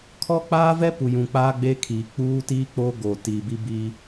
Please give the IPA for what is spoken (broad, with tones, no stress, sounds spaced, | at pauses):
kʰ ɔ˦ k͡p aː˦ v ɛ˦ p u˨ j ũ˨ k͡p aː˦ ɡ͡b eː˦ kʰ iː˨ k͡p uː˦ t iː˦ k͡p o˦ ɡ oː˨ t iː˨ b i˦ b iː˦